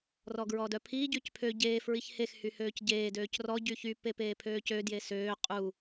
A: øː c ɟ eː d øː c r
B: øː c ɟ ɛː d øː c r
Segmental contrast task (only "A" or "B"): A